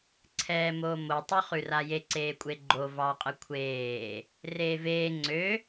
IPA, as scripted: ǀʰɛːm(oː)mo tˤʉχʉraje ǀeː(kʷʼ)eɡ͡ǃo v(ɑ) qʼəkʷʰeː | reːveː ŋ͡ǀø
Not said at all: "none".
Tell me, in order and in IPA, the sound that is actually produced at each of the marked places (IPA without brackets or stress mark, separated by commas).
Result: oː, kʷʼ, ɑ